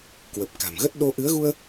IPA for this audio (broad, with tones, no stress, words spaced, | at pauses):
kwə˨˩p̚ka̤˨˩mɣə˦˥t̚ ɗo˧ ʔɨ˨˦ə̯ɣu˧ə̯